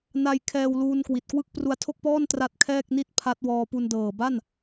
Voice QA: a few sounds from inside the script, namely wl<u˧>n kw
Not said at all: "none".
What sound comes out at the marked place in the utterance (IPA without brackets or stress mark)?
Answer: uː˧